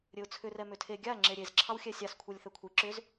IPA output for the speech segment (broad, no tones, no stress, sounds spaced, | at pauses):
ɾʲ ɘ ʊ̯ t͡sʰ ʏ r ɛ m ʏ tʰ e ɡʲ a ŋ͡ǁ e ɾʲ e z ǁʰ ɑ w xʲ ɛ sʲ ɑ s kʷʰ ɛ lʲ θ ɛ kʷʰ i ǁ ʏ z